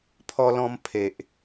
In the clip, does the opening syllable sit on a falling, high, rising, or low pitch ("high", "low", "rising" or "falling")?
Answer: high